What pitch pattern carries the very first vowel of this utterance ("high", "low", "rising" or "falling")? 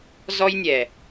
high